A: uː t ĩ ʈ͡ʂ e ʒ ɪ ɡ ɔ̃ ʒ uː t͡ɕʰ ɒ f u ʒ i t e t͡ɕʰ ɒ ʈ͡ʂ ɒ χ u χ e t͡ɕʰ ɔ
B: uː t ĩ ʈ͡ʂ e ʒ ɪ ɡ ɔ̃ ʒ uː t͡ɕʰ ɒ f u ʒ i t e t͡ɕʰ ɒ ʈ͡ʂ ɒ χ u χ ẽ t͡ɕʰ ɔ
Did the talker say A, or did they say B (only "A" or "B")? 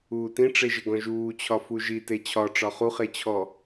A